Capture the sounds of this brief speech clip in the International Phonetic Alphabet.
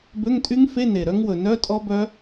bø˧˥˧ŋtʼy˦˥ŋfe˧˥˧ ne˨˩ɾœ˦˥ŋwɵ˨˩ nœ˧˥˧ tʼɔ˦˥bœ˦˥

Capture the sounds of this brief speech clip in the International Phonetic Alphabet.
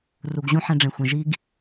ru˨ɡʑũ˦ ħɛ̃˦ɖ͡ʐẽ˨xʷẽ˨ ʒi˦ɡ

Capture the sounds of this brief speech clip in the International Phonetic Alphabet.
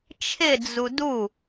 t͡ʃʰɪ d͡zudu

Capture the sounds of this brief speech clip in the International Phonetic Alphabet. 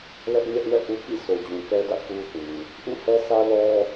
lɛ˦ʔ ɲɛ˦ʔwɛ̰˦˨ʔu˦kḭ˦˨ so˨d͡ʑũ˨kɛ˦dä̰˦˨ ku˦θĩ˨ | ʔṵ˦˨hɛ˦sä˦ lɔ˦

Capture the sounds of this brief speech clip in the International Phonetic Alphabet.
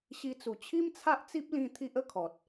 ɕi˧t͡su˨˩ t͡ɕʰi˦mt͡sʰa˦ʔt͡si˦p̚lĩ˧ t̪ʰi˦ʔə˥˧kʰɔ˨t̚

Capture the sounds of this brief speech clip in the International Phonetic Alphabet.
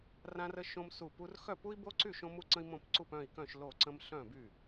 rã˥rə˥ʃõ˥m su˥˨ pu˥r xœ˥˨pu˥i̯bo˥ǀy˥˨ ʃõ˥mu˥ǀə̃˥i̯mõ˥˨p ǀu˥˨pœ̃˥˨i̯kœ̃˥˨ʃ lo˥˨ǀə̃˥m ɬœ̃˥˨by˥˨

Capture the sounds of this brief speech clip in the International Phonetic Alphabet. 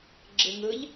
ɡ͡ǁɯŋɯʎ

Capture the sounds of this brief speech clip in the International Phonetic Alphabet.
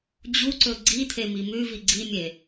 d͡ʑuǀɵ ɡ͡ǀit̪ʰemi mʉvi ɡ͡ǀimʲe

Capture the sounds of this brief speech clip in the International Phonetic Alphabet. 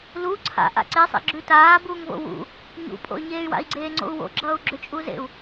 lu ǀʰa̰ ʔa̰ǀesˤḛ ɡ͡ǁʉtaː buːŋvo̰wṵ | ɲṵpʼo̰y̯ɲeːy̯ wa̰i̯ɡ͡ǀeːŋ͡ǀo̰u̯wo̰ ɡ͡ǁʌːu̯ɡ͡ǁʏt͡ʃʼuzḛu̯

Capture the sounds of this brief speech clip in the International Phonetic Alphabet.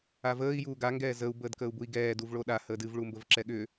avəːi̯ juːɡa ŋɡɛːzəu̯ bəːdkəːu̯bui̯ɡɛːd uvɭoɗa həːdɨv ɭumbəvǁɛɠʏ

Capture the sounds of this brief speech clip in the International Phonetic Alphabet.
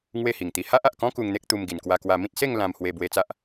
ŋwe˥˧hi˨˩ŋt̪i˧ ha˦ʔa˨ʔkɔ̃˦ ku˧ŋ n̪e˦k̚t̪u˧m ɡi˨˩nkwa˧kwa˧mĩ˦t̚ se˥˧ŋ lã˧mhwe˧ bwe˧t͡sa˦ʔ

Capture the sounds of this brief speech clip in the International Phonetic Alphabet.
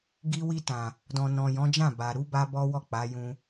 ɡi˧wi˧tã˨ | dɔ̃˨nɔ̃˨jɔ̃˨˦d͡ʒã˦˨ ba˨ ɾu˨˦ba˧ bɔ˦wɔ˦˨k͡pa˨˦ jũ˧

